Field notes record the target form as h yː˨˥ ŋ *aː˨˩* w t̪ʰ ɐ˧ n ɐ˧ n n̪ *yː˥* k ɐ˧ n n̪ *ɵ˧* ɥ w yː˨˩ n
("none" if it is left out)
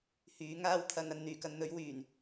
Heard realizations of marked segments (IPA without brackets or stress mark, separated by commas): aː˥, yː˨˩, ɵ˨˥